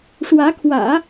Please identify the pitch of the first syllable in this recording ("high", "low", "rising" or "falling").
rising